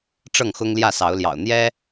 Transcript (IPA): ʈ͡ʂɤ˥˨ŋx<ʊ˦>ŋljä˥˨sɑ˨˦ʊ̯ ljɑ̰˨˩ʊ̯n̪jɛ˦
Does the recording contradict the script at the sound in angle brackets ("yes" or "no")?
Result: no